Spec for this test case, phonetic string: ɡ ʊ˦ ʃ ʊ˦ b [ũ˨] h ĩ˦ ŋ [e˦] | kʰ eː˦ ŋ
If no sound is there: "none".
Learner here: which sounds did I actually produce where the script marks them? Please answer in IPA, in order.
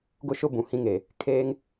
ũ˨, e˨

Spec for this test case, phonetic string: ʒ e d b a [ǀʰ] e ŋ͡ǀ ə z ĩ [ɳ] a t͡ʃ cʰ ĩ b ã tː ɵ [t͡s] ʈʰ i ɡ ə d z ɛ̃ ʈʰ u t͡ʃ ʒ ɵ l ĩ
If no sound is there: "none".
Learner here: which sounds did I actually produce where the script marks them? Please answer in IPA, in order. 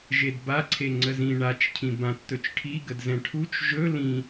ǀʰ, ɳ, t͡ʃ

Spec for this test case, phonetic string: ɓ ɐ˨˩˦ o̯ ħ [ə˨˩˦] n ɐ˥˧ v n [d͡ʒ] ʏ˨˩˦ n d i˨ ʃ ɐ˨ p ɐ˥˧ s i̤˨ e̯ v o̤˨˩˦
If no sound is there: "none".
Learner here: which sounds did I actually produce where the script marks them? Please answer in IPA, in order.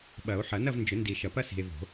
ɐ˨˩˦, d͡ʒ

